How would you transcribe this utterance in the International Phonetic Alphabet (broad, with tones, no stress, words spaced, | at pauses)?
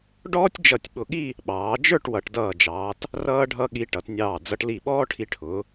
ɖɔː˥tʲd͡ʒʌ˧˩tʲɓʊ˧˩ɠi˥˧ | ɓɑː˩˧d͡ʒə˞˥˧ʈ wʌ˩˧ʈdʌː˧˩d͡ʒɑː˩˧t | rʌː˧ɖʱʌ˧ ɠi˧ʈʌ˩˧tnʲɑː˧˩ d͡zʌ˧ʈli˧˩ɓɔː˥ʈʰi˧ ʈʰʊ˩˧